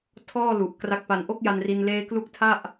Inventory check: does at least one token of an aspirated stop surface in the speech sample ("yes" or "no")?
yes